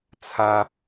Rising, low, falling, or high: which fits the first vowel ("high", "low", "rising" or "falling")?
high